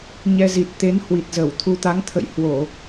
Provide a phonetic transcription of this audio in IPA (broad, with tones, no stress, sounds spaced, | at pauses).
ɲ ɛ˧ z i˨˩ t̚ t̪ e˨˦ n h w i˨˩ t̚ z ə˧˩ w t̪ʰ u˧ t̪ a˨˦ ŋ t̪ʰ ə̰˧˨ j h w o˧˩˨